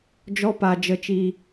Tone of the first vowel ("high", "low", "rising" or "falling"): high